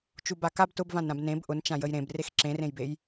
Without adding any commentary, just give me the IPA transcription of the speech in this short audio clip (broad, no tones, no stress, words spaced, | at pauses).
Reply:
t͡ʃubakab tʊbvãnɾãb nẽb ʔʊnt͡ʃã jəjɾẽb rexǁẽrẽjbej